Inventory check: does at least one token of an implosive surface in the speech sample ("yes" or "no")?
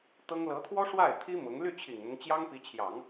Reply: no